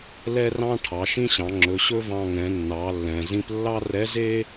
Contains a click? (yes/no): yes